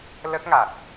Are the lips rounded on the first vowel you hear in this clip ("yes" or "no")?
no